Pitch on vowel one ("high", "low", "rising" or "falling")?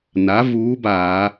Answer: rising